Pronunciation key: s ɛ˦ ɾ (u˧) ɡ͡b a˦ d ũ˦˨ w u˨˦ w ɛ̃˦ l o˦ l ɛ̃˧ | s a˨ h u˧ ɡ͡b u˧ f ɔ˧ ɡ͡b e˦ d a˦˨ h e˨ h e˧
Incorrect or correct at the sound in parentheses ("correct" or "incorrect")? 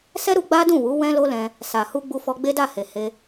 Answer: correct